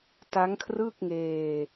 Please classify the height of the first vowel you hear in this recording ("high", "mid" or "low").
low